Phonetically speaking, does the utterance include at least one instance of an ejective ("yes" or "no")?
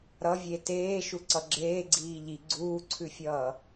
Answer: no